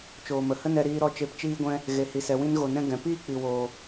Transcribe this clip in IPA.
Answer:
t͡ʃoː˨mə˨hə˦nɛ˧ ɾiː˧ɾɔ˧ t͡ʃe˧pt͡ʃiː˦ɡʷɛ̃˦ | ɣe˨hi˨sɛ˨ wĩ˧nɣo˨nɛ̃˧ ɡɛ̃˨ piː˦k͡pi˨woː˨

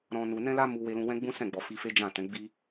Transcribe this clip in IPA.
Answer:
ɾɔ̃˧ nu˧ nɛ̃˦la˦ mu˧ we˧lũ˧wɛ̃˦ɡ͡bũ˦ sɛ̃˦˨ɡ͡bɔ˨fi˧fe˦ d͡ʒã˦˨tɛ̃˨˦ ɡ͡bi˦

